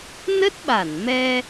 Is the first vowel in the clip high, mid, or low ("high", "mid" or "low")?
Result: mid